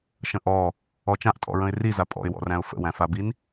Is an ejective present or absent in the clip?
present